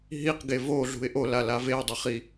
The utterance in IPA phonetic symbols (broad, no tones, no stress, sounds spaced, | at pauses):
ɦ i q ɡ e v o ɮ ṳ ɪ̯ ʔ o l a l a v e ʊ̯ dˤ i χ i